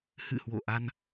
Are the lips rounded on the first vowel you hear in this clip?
no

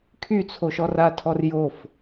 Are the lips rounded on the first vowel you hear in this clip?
yes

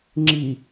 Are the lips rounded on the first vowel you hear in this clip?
no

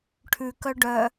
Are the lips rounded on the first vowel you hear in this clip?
yes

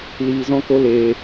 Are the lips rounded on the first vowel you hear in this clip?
no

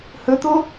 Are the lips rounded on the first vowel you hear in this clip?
yes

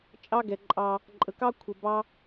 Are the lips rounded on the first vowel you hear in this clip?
no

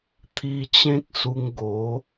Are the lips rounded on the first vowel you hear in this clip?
no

